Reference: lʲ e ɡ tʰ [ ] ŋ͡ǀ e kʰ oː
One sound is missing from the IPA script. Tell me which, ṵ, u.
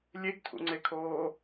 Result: ṵ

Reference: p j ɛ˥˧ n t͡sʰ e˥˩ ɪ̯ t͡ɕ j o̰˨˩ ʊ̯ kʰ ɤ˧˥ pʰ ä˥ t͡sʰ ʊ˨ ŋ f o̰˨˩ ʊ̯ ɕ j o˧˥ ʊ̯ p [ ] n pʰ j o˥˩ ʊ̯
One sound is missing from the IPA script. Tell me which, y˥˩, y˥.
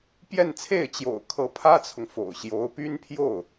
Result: y˥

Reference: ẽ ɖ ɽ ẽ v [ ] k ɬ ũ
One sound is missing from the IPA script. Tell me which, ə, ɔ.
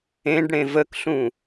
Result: ə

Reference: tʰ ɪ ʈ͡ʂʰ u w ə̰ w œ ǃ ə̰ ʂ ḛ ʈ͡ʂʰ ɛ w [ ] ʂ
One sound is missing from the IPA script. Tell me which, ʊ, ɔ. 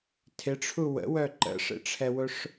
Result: ʊ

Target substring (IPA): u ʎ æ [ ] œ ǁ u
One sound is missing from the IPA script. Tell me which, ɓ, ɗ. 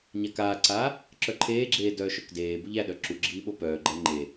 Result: ɗ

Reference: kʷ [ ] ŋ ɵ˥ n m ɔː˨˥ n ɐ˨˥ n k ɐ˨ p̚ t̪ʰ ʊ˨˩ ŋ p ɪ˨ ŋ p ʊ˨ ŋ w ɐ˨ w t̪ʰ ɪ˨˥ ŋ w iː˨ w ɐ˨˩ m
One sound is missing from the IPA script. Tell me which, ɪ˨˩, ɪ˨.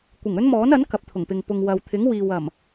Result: ɪ˨˩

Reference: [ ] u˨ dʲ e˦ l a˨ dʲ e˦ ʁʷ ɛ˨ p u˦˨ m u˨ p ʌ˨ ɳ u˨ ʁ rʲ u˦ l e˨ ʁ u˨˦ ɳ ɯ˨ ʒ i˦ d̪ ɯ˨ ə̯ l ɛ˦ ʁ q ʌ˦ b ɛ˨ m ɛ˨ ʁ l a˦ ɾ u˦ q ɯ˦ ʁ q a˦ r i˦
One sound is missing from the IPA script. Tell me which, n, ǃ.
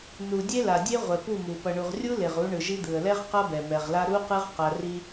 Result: n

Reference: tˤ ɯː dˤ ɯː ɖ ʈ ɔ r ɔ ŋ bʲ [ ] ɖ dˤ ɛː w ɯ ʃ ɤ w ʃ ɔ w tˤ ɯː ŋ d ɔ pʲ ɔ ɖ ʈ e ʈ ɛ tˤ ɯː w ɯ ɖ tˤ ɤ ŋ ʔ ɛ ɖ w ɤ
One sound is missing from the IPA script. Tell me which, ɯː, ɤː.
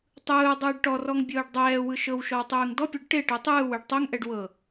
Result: ɤː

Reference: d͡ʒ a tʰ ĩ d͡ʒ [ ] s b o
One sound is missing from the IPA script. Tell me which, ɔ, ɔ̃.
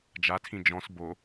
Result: ɔ̃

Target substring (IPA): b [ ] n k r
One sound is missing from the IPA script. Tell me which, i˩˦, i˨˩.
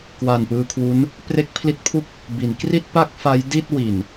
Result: i˩˦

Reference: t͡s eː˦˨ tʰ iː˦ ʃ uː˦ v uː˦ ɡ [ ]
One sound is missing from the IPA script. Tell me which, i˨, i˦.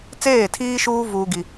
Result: i˦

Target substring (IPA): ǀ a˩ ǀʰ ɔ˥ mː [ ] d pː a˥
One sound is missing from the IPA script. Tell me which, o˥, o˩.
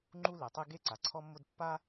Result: o˥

